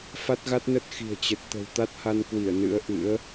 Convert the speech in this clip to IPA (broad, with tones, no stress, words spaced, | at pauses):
fa˦˥t̚ɣa˦˥t̚nə˦˥t̚ xi̤˨˩ə̯t͡ɕə˨˩t̚ t̪ə̤˨˩wt̪a˦˥t̚ha˧nkwi˧˩ə̯ nɨ̰˧˥ə̯ʔɨ̰˧˥ə̯